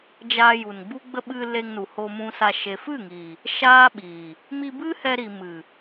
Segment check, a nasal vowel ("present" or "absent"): present